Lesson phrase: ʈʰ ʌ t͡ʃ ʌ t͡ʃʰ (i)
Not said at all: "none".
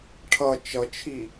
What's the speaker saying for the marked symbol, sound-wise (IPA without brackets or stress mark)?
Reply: i